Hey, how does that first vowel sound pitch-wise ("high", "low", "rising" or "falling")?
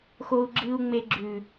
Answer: high